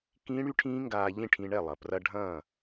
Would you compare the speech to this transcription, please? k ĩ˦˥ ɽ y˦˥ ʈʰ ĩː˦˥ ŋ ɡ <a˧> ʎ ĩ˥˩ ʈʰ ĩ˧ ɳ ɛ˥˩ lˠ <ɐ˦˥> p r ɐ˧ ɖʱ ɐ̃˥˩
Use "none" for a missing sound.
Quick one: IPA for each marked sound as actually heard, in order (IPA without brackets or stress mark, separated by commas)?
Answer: aː˧, ɐ˩